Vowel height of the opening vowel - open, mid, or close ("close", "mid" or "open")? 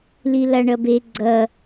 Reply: close